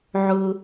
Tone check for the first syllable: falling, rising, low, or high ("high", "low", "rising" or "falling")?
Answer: low